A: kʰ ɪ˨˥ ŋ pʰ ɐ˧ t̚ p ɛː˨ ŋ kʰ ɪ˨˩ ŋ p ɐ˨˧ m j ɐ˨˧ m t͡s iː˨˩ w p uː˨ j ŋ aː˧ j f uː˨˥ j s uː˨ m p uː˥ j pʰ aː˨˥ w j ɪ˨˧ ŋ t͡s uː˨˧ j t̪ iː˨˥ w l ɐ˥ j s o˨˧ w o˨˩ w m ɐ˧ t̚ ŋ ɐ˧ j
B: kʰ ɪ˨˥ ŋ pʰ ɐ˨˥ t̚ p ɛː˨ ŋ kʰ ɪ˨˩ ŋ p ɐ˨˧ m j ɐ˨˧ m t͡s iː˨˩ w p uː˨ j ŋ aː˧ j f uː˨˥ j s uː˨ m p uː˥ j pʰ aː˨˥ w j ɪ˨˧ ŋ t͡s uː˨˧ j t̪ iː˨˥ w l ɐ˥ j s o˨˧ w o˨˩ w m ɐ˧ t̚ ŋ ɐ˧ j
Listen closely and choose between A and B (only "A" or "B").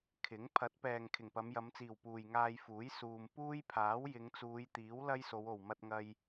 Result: B